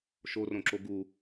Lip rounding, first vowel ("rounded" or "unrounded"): rounded